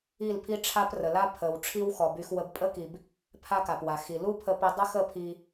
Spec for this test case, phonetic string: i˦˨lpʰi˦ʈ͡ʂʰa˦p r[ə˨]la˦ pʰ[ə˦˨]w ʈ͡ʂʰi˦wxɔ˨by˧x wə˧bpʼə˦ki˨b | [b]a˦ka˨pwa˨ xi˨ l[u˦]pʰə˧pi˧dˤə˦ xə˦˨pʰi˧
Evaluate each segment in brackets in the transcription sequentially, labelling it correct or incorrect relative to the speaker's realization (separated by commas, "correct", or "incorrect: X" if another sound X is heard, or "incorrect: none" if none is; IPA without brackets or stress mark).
correct, incorrect: ə˨, incorrect: pʰ, correct